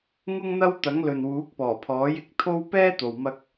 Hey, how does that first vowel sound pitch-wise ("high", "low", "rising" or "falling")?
high